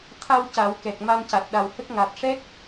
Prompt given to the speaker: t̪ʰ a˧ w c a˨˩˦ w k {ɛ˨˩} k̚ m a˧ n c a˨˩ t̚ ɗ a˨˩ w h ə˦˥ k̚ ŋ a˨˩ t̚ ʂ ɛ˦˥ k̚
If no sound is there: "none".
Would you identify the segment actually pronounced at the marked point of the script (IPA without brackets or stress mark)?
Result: ɛ˨˩